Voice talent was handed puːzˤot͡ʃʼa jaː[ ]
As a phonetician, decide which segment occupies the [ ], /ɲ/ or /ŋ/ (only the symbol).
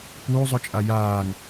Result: ŋ